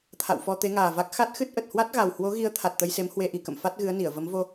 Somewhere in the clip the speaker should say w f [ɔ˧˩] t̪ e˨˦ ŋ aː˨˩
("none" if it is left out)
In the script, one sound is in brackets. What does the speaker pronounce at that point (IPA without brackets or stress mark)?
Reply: ɔ˧